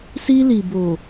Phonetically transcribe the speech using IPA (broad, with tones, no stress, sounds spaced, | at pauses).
s i˦ l i˨ b o˨